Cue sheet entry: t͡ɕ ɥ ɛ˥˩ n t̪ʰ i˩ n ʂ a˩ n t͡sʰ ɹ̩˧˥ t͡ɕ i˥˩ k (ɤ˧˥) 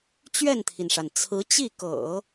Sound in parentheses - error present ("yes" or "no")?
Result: yes